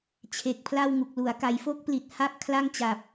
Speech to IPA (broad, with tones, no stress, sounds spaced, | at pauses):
t͡ɕʰ e˨˩ k̚ pʰ l a˥˩ w ŋ u˨˩ k̚ l u˩˦ a̯ k a˩˦ j f o˥˩ k̚ p l i˨˩ t̚ h a˥˩ p̚ kʰ l a˥˩ ŋ t͡ɕ a˨˩ p̚